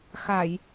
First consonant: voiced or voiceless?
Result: voiceless